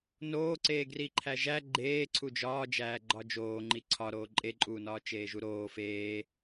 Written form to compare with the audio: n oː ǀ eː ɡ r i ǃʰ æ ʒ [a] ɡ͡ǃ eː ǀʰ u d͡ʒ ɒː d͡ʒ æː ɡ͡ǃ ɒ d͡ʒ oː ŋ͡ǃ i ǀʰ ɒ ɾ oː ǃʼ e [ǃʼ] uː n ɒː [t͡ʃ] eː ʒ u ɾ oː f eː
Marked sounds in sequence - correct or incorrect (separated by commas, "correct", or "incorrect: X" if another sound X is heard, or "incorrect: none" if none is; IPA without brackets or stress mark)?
incorrect: æ, correct, correct